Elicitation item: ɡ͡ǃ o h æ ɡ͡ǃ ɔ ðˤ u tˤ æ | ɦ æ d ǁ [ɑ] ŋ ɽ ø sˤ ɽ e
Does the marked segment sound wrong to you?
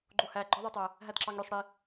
no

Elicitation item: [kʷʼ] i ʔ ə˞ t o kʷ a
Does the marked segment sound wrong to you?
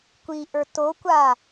yes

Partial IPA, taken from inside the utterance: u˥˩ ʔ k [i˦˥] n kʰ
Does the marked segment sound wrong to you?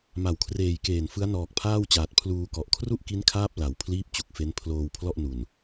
no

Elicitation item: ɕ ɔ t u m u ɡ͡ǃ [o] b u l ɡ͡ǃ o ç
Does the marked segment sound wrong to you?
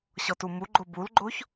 no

